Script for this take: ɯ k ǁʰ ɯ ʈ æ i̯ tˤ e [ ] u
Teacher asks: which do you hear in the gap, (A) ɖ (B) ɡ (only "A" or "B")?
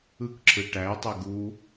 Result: B